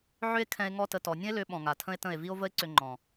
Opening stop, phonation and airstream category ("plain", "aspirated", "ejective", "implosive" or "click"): aspirated